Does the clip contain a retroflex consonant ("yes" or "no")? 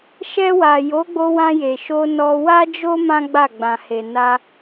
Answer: no